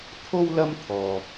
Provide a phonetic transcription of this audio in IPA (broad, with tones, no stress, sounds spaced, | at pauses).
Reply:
t̪ʰ o˥ w l ɐ˥ m t̪ʰ ɔː˥